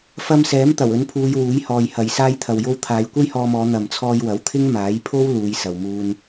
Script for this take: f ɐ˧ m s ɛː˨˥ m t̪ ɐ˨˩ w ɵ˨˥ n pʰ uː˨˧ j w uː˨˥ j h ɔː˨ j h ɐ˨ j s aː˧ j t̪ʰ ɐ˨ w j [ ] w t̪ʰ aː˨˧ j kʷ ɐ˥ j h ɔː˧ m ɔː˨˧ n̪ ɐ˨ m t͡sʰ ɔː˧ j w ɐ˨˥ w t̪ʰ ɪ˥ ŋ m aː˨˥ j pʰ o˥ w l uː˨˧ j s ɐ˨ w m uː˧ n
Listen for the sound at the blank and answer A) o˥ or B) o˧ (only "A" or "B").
B